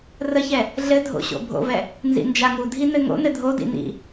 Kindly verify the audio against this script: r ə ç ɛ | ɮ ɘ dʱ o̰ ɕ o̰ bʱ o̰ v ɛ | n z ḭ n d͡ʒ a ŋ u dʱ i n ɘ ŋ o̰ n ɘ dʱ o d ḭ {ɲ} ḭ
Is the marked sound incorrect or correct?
incorrect